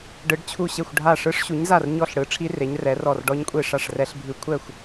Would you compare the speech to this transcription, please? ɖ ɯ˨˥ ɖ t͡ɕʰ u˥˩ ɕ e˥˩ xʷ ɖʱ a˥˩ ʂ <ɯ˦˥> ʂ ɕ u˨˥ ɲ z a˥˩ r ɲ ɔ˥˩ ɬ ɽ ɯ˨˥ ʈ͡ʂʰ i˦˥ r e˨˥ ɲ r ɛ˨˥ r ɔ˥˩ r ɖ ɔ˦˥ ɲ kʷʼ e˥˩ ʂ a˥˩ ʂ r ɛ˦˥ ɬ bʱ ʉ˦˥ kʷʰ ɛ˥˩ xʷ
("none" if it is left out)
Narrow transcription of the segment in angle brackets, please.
ɯ˦˥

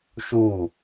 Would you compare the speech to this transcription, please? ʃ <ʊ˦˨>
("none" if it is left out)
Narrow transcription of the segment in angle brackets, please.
u˦˨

